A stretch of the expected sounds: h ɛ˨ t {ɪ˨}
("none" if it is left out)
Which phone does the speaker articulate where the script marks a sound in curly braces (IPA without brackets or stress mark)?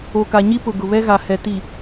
i˨